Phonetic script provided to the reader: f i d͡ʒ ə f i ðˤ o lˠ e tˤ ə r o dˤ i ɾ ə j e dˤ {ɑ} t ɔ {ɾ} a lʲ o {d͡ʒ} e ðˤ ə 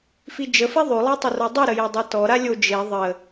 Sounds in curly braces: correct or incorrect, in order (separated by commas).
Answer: correct, correct, correct